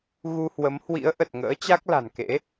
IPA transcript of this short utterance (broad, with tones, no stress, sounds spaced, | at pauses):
ɣ u˧ h w ə˨˦ m h w ḭ˧˥ ə̯ ʔ ə˨˩ t̚ ŋ ə̰ː˧˥ t͡ɕ a˦˥ k̚ l a̤˨˩ n k ḛ˧˥